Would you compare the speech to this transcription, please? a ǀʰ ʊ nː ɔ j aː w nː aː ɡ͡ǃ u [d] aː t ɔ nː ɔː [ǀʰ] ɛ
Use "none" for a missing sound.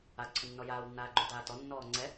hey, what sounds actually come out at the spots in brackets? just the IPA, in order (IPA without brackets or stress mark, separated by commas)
d, ŋ͡ǀ